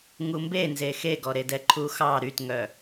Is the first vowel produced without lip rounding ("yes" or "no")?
no